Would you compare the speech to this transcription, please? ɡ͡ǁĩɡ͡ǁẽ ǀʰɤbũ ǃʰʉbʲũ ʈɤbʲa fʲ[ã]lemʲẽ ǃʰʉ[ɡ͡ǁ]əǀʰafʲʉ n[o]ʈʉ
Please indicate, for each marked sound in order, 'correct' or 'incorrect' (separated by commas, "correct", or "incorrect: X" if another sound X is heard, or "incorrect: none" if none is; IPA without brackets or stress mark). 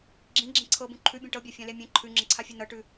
correct, incorrect: ŋ͡ǁ, incorrect: ɤ